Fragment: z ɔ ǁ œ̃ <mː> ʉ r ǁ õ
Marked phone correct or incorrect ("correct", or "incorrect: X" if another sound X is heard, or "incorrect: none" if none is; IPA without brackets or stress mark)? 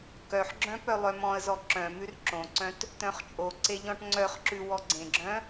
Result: incorrect: m